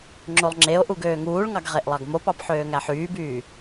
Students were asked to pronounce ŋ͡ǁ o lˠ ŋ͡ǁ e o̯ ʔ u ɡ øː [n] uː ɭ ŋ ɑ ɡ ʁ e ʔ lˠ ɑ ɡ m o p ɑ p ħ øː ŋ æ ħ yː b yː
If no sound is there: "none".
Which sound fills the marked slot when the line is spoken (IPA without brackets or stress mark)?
ŋ